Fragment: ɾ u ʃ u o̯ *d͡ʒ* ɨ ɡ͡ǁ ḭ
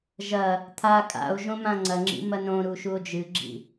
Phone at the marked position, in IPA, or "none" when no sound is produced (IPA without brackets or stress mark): d͡ʒ